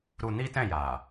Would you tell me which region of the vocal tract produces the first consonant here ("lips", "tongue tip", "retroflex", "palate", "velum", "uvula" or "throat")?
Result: tongue tip